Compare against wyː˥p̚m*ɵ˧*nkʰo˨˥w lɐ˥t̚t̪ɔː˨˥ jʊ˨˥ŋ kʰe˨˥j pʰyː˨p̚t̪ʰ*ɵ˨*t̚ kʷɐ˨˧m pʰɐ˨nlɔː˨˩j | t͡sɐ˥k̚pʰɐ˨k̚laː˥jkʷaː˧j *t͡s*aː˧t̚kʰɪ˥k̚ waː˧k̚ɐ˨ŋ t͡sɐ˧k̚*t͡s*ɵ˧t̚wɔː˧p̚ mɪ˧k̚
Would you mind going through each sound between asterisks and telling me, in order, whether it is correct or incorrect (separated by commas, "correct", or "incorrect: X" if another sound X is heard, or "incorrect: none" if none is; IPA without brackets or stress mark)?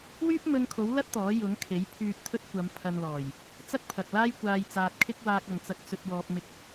correct, incorrect: ɵ˧, correct, correct